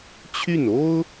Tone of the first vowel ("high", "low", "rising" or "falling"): falling